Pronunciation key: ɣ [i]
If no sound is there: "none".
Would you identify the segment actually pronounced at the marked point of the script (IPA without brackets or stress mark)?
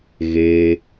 e